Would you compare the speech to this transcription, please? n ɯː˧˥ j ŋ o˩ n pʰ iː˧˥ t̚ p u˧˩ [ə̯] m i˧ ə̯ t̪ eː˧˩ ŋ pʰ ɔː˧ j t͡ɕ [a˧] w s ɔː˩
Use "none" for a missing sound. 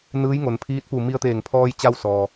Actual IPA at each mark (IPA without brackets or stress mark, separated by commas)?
none, a˧